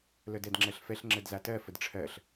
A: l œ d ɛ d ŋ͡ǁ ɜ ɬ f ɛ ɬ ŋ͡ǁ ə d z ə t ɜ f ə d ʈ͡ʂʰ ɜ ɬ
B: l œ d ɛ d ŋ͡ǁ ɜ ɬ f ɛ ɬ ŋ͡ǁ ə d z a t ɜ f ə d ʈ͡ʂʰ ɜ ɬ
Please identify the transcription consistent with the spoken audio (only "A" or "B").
B